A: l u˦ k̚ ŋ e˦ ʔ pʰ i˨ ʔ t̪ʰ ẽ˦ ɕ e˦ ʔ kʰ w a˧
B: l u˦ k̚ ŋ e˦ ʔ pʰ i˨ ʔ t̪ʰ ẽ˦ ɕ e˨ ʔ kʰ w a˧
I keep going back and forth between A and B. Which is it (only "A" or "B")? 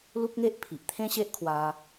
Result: A